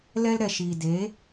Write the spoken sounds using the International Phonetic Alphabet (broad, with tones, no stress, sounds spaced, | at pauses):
l ɛ˦ l ɾ ɛ˨ ʃ iː˨ d e˨˦